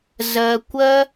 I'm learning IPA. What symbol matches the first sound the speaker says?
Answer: z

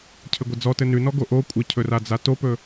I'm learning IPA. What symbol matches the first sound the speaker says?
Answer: cʰ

